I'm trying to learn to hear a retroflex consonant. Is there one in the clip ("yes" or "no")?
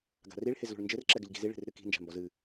yes